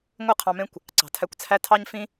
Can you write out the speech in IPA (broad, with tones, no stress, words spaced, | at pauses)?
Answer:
ŋʷɯ˦˨qʰɑ̃˧mẽ˦kʷ | ǀɑ̤˨tʰæ˧kʷt͡sʰæ˦ tʰɑ˦ɲfĩ˦